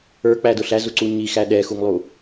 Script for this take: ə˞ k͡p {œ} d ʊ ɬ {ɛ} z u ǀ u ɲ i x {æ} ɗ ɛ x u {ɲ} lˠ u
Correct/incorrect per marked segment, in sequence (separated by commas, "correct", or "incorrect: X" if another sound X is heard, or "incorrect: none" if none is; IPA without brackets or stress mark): incorrect: æ, incorrect: æ, correct, incorrect: ŋ